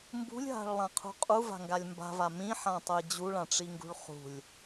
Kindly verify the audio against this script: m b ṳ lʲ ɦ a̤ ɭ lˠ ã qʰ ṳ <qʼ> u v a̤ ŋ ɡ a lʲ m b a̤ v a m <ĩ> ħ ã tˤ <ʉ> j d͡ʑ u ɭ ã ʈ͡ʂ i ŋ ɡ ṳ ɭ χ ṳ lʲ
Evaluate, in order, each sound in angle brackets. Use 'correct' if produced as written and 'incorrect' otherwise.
correct, correct, incorrect

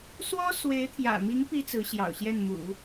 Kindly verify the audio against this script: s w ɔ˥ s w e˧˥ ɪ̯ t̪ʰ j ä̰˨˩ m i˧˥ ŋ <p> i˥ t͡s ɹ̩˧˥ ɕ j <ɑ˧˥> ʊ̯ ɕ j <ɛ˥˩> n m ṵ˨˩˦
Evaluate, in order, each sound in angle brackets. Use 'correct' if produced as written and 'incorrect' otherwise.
correct, incorrect, correct

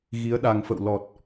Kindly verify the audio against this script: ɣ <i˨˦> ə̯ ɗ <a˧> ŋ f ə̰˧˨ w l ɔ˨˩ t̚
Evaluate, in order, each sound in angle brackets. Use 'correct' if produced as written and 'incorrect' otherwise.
correct, incorrect

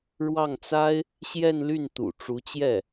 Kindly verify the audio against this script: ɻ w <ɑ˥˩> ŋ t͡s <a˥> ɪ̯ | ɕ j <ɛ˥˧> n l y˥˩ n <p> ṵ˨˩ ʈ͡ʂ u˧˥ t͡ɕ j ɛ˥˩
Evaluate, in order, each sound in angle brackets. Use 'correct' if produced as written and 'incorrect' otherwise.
correct, correct, correct, incorrect

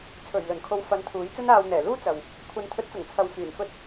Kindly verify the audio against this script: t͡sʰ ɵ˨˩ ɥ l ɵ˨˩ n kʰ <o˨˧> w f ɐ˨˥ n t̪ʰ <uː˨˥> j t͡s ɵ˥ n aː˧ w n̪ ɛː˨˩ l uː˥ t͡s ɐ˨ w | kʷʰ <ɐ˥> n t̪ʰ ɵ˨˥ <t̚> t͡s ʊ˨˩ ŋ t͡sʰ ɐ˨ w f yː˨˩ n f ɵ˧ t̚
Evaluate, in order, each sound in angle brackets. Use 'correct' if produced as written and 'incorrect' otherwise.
correct, correct, incorrect, correct

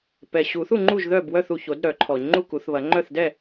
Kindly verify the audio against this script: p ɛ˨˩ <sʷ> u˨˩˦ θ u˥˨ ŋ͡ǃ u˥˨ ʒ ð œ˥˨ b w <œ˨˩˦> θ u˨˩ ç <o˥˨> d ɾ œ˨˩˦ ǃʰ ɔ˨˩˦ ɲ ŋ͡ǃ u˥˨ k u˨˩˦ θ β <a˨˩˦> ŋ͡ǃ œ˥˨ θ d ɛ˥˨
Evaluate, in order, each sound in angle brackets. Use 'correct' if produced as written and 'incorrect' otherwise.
incorrect, incorrect, incorrect, incorrect

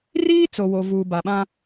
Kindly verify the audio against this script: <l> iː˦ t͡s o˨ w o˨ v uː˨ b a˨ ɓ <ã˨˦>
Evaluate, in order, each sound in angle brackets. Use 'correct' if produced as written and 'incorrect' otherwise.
incorrect, incorrect

